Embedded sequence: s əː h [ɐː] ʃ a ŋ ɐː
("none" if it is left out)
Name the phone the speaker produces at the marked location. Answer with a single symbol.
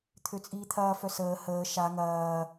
əː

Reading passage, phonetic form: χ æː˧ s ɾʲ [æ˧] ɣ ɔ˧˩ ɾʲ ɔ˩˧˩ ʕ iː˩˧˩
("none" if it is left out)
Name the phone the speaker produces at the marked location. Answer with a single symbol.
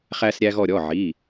æ˧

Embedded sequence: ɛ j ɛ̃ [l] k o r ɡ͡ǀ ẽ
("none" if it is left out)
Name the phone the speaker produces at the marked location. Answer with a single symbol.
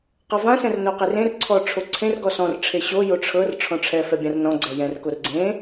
r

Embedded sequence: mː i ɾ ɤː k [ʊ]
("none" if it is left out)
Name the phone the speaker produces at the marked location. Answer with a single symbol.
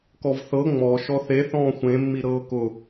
ʊ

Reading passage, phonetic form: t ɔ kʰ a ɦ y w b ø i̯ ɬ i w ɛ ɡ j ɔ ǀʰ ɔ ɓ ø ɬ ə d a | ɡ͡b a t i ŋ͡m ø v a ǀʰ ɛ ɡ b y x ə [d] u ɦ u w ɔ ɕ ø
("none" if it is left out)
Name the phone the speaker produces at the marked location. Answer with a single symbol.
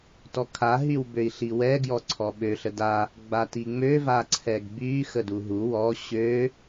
d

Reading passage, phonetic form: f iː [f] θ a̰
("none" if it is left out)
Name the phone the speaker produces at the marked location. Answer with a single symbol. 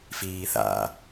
none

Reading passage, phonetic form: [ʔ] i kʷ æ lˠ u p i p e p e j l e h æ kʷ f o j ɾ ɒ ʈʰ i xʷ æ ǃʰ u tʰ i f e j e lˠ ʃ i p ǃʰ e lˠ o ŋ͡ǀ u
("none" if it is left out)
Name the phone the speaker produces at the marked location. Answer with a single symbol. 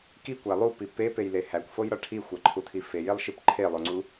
k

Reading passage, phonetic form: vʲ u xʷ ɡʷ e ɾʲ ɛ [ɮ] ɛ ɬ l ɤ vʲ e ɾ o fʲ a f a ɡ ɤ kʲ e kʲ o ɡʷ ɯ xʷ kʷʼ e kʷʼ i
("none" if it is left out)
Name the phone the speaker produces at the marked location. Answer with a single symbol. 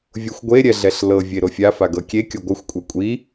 ɮ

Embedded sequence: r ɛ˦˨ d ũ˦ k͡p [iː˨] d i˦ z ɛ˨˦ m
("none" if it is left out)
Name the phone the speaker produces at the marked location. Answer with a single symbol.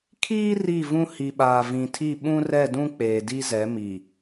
eː˨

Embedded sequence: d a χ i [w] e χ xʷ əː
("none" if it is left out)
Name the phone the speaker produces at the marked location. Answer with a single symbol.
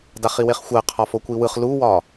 w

